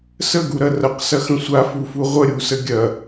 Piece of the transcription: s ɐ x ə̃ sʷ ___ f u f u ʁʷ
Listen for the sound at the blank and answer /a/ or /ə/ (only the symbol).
a